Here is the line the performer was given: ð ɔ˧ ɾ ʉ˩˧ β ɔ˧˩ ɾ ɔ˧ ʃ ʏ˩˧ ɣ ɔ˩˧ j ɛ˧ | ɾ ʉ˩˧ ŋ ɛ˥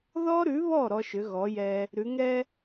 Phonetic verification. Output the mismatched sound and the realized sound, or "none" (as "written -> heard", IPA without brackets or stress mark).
none